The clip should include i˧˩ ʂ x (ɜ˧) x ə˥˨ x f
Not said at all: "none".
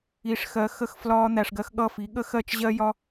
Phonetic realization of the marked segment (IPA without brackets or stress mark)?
ɜ˧